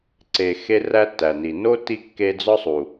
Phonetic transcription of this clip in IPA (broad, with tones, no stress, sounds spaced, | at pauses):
ǀ e˨ x e˦ r æ˦ tː æ˩ n i˩ n o˥ tː i˦ kː e˦ d͡z ɒ˥ sˤ u˨